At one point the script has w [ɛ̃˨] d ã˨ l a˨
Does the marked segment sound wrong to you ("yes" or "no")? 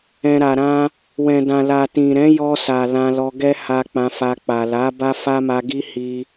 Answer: no